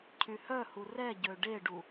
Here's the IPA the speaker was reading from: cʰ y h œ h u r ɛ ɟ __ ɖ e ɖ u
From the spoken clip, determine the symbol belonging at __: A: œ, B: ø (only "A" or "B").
B